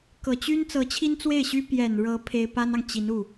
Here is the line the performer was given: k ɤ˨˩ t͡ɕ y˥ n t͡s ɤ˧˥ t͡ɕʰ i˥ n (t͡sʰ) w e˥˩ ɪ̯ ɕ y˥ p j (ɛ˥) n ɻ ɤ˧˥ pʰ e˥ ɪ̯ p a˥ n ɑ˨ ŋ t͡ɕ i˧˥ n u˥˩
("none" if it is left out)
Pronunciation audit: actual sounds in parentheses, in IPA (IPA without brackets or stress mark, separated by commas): t͡s, ɛ˨˩